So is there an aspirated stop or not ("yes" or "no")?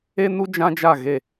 no